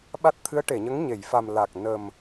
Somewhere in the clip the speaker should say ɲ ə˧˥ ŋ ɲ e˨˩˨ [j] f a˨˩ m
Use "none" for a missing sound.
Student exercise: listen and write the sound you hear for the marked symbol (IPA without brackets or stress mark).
j